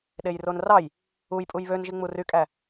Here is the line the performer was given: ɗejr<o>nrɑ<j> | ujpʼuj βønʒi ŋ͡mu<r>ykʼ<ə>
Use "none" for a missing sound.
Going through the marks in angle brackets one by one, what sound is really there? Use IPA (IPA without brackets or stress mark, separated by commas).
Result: o, j, r, æ